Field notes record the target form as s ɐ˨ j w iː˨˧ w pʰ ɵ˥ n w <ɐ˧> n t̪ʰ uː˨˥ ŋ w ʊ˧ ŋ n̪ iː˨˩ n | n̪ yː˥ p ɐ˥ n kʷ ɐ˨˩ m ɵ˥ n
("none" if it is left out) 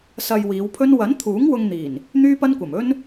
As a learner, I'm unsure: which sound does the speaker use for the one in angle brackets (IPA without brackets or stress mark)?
ɐ˨˥